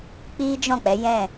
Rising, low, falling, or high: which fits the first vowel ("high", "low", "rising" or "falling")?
high